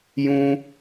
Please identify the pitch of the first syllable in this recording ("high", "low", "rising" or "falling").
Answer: high